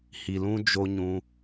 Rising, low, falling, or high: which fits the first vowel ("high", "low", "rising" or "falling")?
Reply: low